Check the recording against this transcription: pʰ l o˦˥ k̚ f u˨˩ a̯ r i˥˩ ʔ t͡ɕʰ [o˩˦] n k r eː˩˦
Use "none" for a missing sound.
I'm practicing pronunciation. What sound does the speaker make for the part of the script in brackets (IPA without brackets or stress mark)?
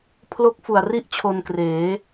o˧